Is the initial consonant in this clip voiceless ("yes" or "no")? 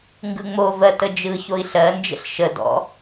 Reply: no